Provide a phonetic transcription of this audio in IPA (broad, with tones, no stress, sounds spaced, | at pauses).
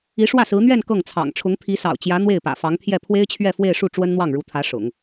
i˧˥ ʂ w ä˥˩ s ɹ̩˧˥ n̪ ɥ ɛ˥˧ n k ɤ˥˩ ŋ t͡sʰ ɑ̰˨˩ ŋ ʈ͡ʂʰ ʊ˧˥ ŋ t̪ʰ i˧˥ s ɑ̰˨˩ ʊ̯ t͡ɕ j ä˧˥ n̪ w e˥˩ ɪ̯ p ä̰˨˩ f ɑ˧˥ ŋ t̪ʰ j ɛ˥˩ pʰ w e˥ ɪ̯ t͡ɕʰ ɥ ɛ˥˧ f w e˥˧ ɪ̯ ʂ u˥˩ ʈ͡ʂ w ə˥ n n̪ w ɑ˥˩ ŋ ɻ u˧˥ t̪ʰ ä˧˥ ʂ ʊ̰˨˩˦ ŋ